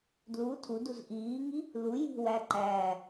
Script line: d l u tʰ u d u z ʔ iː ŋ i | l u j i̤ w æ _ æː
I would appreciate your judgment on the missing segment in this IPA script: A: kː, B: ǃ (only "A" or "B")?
B